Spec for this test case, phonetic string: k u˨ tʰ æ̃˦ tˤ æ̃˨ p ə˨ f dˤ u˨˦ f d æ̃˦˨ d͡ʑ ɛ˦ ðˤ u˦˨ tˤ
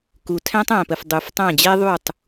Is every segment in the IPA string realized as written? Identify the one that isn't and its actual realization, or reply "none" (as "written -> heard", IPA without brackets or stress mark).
d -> tˤ